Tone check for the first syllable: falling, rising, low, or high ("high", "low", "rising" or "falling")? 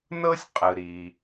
high